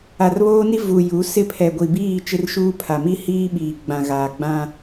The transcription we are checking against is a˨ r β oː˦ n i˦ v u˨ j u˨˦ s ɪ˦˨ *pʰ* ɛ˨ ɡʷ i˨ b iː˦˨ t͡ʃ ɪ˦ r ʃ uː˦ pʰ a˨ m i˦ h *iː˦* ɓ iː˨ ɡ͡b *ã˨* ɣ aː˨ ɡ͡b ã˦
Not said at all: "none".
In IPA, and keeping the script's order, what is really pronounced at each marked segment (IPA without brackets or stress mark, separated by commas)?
pʰ, iː˦, ã˨